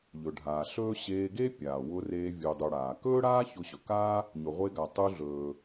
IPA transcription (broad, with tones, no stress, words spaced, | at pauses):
ʎɵ˩ɖʱaː˩ ɬɵː˥ ɕeː˧ɡe˥pʲaː˩wʊ˧ reː˧vʲu˩dˤu˩ ɽaː˩ kɵː˥ɽaː˥ çʊ˧ɕɵ˩kaː˥ | ɲɵ˩ʁʷeː˧ɡa˩ tˤu˧ ɮɵː˩